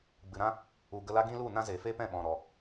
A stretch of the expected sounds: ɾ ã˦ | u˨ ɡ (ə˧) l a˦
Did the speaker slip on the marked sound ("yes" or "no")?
no